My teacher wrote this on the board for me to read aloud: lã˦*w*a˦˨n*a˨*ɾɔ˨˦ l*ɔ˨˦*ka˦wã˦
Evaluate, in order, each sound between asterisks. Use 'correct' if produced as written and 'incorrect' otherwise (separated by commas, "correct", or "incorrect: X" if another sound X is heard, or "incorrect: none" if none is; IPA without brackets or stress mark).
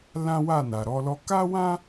correct, correct, incorrect: ɔ˧